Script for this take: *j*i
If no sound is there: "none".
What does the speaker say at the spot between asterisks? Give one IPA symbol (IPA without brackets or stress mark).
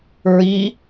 ɹ